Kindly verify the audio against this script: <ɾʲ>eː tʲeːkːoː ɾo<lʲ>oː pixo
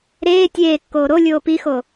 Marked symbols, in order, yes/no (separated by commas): no, yes